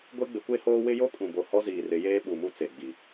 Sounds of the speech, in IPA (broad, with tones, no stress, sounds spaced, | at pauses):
ɡʷ e˦ ɡ͡b ɪ˨˦ kʷ e˦ h oː˦ w ɪ˦ j o˦ kʼ ũ˨ b o˨ h ɔ˦ z iː˨ r ɪ˨˦ j eː˦ ɓ u˨ m u˦ t͡s e˨ ɡ͡b i˨